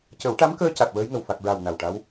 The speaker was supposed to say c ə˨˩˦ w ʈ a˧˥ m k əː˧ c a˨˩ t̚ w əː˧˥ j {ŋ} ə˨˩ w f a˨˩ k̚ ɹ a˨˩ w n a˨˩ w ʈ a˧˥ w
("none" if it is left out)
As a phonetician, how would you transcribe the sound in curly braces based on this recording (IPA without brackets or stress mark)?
ŋ